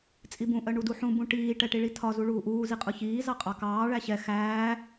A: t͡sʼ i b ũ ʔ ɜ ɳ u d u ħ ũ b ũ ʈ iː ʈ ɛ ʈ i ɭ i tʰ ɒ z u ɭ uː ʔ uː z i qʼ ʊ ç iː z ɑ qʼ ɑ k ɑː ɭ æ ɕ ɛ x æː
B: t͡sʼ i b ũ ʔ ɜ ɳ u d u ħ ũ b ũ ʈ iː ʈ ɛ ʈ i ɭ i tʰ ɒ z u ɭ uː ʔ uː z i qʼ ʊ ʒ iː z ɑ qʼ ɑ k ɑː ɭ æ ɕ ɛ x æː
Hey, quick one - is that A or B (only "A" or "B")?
A